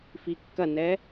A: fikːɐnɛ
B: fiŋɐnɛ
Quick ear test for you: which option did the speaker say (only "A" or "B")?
A